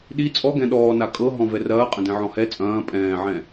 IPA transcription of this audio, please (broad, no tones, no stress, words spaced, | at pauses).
ɗi t͡sʼɔɡɛ̃ ɗɔːna kʼɤ ɦɔ̃vɛrɐː qʼɐ̃dɛ̃ʕɔ̃hɛ t͡sʼɐ̃ː pʼɛ̃ːʕɛ̃